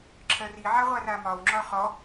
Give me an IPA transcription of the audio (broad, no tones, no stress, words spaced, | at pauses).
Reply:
ǁʰɜriʕa ʁʷaramɒwŋ͡ǁɒ χɔ